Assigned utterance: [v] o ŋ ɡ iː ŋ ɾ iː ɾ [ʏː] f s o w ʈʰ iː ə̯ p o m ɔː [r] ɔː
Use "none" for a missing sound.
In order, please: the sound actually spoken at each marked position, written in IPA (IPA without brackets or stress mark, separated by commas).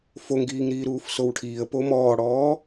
f, uː, ɽ